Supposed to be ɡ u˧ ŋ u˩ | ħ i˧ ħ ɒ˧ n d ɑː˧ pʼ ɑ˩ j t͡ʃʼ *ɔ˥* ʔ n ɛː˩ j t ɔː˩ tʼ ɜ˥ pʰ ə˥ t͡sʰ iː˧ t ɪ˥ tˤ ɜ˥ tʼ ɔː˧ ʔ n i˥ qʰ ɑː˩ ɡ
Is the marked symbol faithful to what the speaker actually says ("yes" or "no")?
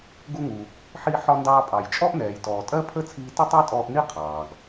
yes